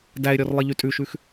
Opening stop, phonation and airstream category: plain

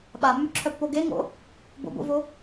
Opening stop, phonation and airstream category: implosive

